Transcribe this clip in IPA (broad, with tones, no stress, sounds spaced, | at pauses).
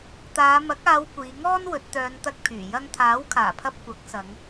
t̪ aː˨˧ m ɐ˨˥ k̚ aː˨˧ w kʷ iː˨˧ ŋ ɔː˥ n w ɵ˨˥ t̚ t̪ œː˨˧ n t̪ ɐ˧ k̚ pʰ yː˨˩ j ɐ˧ ŋ t̪ʰ aː˨˥ w kʰ aː˨˩ pʰ ɐ˧ p̚ kʷ ɐ˨˥ k̚ s ɐ˨˧ ŋ